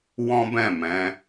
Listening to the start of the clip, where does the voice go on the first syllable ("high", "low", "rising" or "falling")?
high